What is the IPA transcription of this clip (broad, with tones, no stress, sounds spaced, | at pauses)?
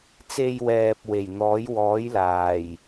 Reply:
t͡s e˧ j w ɛː˨ p̚ w e˨˩ j n̪ ɔː˨˥ j w ɔː˨˥ j l aː˨˩ j